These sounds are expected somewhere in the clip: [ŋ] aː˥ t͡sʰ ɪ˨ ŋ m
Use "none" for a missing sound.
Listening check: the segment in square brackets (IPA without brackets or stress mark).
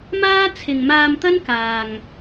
m